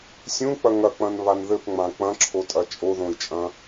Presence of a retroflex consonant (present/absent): absent